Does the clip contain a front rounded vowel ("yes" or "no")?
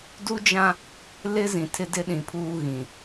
no